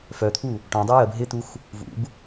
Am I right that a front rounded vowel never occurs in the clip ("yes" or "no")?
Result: no